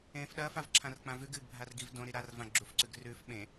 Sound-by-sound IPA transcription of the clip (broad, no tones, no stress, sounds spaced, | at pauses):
ẽː f ɗ ɐː f a v ǁʰ ã r k͡p ã v ʉ ɡ ɨː ɡ bʱ a r ɡ i v d õ ɾ i ɾ a r v ã ɡ͡ǁ u f ǀ ʉ ɡ r ʉ f ɓ ẽ